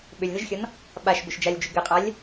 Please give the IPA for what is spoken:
ɓʏlʲðɘʒxʲɔn | ɓaʃbʏʃd͡ʒalʲd͡ʒʏ ɡɘqʼalʲ

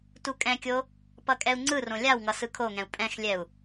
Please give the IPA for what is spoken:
tukʼɛ̃kʲo | pʌkʼɛu̯ŋ͡ǀɯrõ lʲawŋʌ sɯkʰoŋɛ̃u̯ pʼɛ̃xlʲɛu̯

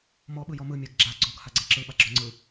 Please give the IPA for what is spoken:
mɔ ɓɯjɔmɯ mʲaɡɡ͡ǁa ɡ͡ǀɔɡ haɡ͡ǀɛǁɯ ɓaɡ͡ǁɔŋ͡ǀɯ

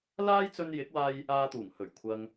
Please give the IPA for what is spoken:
laː˥jt͡sɵ˧njɪ˨˥k̚waː˧j | aː˧t̪uː˨˩ŋ hɵ˨˩ɥkʷʰɐ˨ŋ

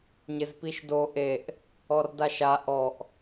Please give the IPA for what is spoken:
ɲɪzpiʃdo ʔeʔ | ɔrdaʃa ʔɔʔ

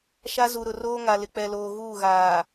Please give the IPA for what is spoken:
ʃa˦ zu˨ ɾʊ˨roː˦ŋa˨lɪ˨ k͡pɛ˨loː˨ ɣuː˦˨ɣaː˨

